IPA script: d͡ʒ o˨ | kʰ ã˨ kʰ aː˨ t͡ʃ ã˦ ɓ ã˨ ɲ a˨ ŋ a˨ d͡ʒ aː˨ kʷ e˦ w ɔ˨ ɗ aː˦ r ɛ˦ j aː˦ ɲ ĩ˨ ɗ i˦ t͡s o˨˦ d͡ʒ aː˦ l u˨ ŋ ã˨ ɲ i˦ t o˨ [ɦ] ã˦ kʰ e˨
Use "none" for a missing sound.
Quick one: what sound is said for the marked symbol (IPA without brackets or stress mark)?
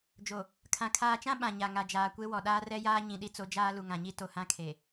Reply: h